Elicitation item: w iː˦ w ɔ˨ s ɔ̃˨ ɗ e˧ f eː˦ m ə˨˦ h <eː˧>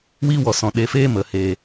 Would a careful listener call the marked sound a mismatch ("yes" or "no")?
no